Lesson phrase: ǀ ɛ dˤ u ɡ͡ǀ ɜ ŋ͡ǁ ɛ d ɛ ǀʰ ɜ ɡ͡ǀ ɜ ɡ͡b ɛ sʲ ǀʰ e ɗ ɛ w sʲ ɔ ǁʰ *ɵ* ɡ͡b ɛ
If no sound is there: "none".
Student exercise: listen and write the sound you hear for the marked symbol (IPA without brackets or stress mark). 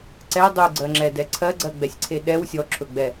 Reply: ɵ